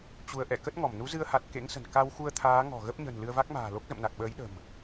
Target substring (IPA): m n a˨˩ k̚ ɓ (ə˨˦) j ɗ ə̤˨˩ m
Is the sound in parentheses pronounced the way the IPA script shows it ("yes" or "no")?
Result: no